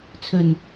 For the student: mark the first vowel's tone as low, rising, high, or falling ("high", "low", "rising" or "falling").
low